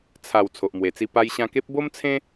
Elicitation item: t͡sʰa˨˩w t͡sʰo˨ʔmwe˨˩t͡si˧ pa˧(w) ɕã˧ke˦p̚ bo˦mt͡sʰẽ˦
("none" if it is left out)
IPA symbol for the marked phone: j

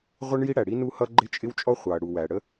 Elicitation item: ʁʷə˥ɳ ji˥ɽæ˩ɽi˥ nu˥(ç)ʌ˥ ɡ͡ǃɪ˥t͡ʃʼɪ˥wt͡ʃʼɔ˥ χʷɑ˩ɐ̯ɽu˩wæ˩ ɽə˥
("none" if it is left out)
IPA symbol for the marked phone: h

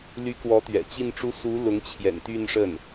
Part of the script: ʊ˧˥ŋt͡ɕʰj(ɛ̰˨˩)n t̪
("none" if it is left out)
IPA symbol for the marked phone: ɛ̰˨˩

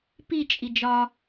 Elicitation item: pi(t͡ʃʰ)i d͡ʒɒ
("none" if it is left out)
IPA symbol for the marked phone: t͡ʃʼ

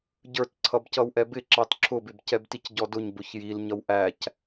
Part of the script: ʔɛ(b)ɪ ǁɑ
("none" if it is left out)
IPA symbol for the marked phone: b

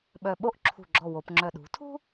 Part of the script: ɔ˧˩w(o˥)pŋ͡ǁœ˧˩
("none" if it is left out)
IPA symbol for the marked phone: o˩˧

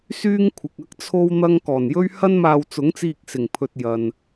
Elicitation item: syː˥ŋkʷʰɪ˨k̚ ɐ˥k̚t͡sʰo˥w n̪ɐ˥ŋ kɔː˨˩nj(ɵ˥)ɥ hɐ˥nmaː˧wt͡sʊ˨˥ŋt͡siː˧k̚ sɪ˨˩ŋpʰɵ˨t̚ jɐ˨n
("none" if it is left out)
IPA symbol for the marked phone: ɵ˥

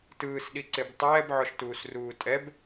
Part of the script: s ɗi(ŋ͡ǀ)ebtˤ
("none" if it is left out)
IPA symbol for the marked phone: ǀ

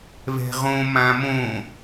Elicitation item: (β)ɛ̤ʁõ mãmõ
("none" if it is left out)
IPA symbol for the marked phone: β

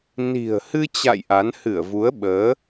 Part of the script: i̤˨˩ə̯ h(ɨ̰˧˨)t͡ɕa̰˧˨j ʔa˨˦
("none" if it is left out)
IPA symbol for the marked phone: ɨ˧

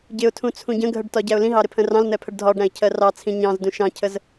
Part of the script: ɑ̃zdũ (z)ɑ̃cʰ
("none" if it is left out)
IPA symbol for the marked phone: ʃ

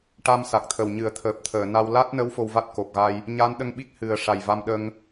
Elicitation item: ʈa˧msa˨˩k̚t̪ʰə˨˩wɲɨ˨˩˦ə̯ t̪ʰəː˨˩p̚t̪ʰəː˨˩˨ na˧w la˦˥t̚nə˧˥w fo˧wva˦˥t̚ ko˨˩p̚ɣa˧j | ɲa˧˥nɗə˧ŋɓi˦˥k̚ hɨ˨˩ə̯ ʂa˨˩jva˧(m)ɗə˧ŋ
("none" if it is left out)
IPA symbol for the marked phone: m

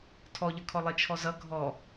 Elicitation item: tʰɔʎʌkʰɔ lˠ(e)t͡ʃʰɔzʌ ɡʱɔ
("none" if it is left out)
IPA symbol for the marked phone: e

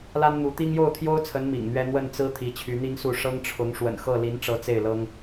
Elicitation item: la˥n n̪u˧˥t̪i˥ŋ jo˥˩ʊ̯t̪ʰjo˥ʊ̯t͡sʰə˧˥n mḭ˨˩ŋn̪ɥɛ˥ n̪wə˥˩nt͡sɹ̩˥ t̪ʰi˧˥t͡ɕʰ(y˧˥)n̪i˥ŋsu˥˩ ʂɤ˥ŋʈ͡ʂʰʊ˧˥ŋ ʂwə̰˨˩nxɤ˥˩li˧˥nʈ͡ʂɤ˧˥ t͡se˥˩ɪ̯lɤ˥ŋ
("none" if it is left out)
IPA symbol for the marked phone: y˧˥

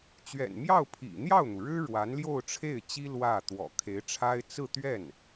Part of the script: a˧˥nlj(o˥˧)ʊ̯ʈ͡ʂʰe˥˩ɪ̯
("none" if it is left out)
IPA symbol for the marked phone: o˥˧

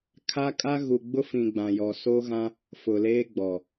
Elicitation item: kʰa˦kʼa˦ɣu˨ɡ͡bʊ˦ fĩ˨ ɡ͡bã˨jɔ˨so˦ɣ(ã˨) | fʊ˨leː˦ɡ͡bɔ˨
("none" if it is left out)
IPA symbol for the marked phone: ã˦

